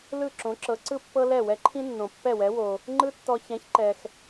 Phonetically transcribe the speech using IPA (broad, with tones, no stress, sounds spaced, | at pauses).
l ɯ˥˩ ǁ õ˩˥ ǁ ɤ˩˥ ǀ ɯ˥ pː ɤ˥ l ɛ˥˩ w ɛ˧ ǃʰ ĩ˥ nː õ˩ pː ɛ˥˩ w ɛ˩˥ w o˩ | ŋ͡ǃ ɯ˥ tː ɔ˧ ç ɛ̃˩˥ ç ǃ ɛ˩ x